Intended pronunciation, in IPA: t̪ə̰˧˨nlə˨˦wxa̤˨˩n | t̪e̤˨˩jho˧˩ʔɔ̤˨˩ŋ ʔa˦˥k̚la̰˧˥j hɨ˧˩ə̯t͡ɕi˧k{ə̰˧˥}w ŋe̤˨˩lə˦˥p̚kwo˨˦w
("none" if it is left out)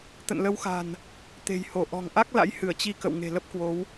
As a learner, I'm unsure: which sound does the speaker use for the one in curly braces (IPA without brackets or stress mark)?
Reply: ə̰˧˨